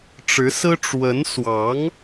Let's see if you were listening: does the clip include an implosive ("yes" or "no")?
no